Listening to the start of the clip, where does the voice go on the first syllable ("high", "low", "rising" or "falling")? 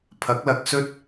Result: rising